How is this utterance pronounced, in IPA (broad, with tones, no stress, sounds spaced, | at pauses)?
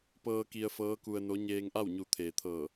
p ɤː˧ k i˧ ə̯ f ɤː˧˥ k u˧ ə̯ n o˧˥ ɲ eː˧ ŋ ʔ a˥˨ w ɲ u˧˩ t̪ʰ eː˩ t̪ʰ ɤː˧˩